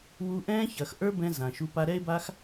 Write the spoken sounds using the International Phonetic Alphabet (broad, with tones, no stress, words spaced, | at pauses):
wu˧ ʔɛ̃ː˦çɐː˨xʔə˞˦bɛ̃˧ zã˨ʃu˧ pa˧ɾɛ˦e̯ba˦x